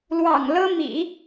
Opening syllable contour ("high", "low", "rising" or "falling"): low